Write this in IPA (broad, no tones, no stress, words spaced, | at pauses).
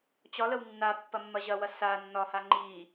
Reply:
t͡ɕɒləw nːa pːɐmːɐʑɐwɐ sa nːɒha ŋ͡ǃi